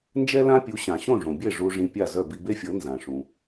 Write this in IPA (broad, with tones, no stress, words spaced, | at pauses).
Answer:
nd͡ʒɛ˥lã˥pʲu˩˥ ɕã˩ɕõ˥˩ʐõ˩bʲe˥˩ ʐu˧ʐĩ˧pʲa˥˩zœ˥˩ bi˧be˥fʲɤ˩˥ nzã˩ʂũ˩